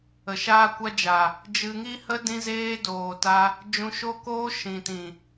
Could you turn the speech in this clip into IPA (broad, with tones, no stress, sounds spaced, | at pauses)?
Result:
ə˨ ʃ aː˦ kʷ a˦ d͡ʒ a˨ | d͡ʒ ɨ˧ ŋ i˦ h ə˦ d ĩ˦ z eː˦ d oː˨ t a˧ | d͡ʒ ũ˧ ʃ o˦ k oː˦ ʃ ĩ˨ t ĩ˨